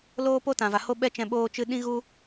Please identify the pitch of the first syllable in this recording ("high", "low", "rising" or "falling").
high